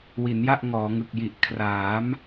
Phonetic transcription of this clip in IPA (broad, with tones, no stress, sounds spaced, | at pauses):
w i˩˦ n j a˥˩ ʔ ŋ ɔː˩˦ ŋ ɯ˨˩ k̚ j i˨˩ ʔ kʰ r aː˩˦ m